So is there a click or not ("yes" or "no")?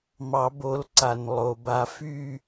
yes